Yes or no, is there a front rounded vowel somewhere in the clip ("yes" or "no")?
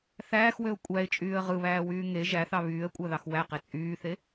yes